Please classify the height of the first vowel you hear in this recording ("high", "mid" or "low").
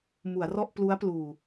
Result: high